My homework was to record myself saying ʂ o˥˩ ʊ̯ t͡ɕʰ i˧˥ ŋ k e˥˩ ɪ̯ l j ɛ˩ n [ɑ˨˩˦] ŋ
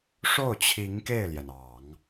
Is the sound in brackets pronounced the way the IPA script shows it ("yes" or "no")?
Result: yes